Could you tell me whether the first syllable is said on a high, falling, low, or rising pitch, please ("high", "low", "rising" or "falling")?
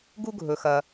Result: high